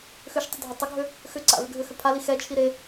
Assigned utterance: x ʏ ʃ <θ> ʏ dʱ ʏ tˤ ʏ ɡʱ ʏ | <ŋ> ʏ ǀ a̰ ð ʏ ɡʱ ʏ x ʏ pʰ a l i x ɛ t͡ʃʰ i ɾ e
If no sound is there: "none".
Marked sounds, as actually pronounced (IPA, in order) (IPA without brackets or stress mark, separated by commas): tˤ, x